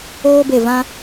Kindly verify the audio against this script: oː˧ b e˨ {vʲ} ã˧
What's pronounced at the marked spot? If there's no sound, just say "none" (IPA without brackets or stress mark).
v